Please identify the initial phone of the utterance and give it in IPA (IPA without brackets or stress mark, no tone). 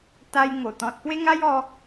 t̪